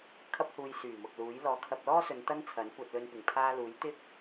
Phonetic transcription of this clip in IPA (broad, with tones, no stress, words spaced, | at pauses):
kʰɐ˥p̚huː˧jsyː˨˩ mʊ˨k̚ luː˨˥j lɔː˨˧kʰɐ˧p̚lɔː˥sɵ˨˧n t̪ɐ˥nt͡sʰɐ˨˥nkʷɐ˧t̚ lɵ˧npɪ˨˩ŋ pʰaː˧ luː˨˥j t̪ɪ˥k̚